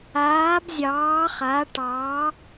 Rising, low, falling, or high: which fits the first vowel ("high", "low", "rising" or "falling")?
rising